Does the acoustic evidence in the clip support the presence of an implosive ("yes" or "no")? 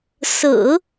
no